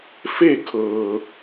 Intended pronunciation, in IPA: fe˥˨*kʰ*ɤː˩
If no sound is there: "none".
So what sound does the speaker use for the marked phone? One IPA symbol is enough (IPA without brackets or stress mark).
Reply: kʰ